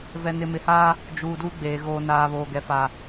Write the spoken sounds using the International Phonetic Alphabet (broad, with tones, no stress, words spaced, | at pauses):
vɛ˨nɪ˨mɪ˨haː˦ | d͡ʒuː˨duː˦ɡ͡beː˨ ɣoː˨naː˨βoː˨ ɡɛ˨ fa˨